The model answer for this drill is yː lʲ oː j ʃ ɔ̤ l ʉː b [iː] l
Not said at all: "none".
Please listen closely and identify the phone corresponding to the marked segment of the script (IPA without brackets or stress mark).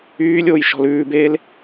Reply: eː